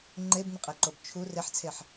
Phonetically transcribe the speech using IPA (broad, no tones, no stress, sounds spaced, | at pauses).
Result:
ŋ͡ǃ e b n̪ ə qʼ e ǃ o b t͡ʃʰ u r e ħ t͡sʰ e ħ